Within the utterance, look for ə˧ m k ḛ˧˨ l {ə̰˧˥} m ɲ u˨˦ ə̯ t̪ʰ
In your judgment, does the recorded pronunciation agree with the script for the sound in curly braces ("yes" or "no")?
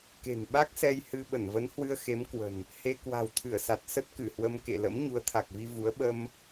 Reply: yes